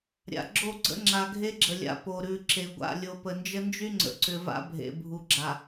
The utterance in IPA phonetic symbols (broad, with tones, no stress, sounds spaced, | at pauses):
ɾʲ a̰˨ ɡ͡ǁ o˦˨ ɡ͡ǀ ə̰˦ ŋ͡ǁ a˨ ɡʱ e˦ ɡ͡ǁ ə˨ lʲ a̰˨ p o˨ ɾ ʉ˨ ǁ e˨ ɡʷ a̰˦˨ lʲ o˨ p ə˨ n d͡ʒ ə˦ n d͡ʒ y˦ ŋ͡ǀ ə̰˨ ǀ ʏ˨ v a̰˦ bʱ ḛ˨ bʱ u˨ ɡ͡ǁ a˨